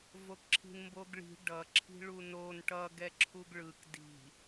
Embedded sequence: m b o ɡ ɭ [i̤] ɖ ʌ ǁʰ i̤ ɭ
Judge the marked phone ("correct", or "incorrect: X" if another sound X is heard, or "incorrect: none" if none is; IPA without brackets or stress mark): correct